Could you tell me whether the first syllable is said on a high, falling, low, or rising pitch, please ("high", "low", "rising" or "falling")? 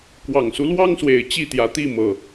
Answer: low